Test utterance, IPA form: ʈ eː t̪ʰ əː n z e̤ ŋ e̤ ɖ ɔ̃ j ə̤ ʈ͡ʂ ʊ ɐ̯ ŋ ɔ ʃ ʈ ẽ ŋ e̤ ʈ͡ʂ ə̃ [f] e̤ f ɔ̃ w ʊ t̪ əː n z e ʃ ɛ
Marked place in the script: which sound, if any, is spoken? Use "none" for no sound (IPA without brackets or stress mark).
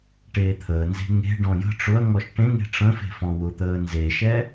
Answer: f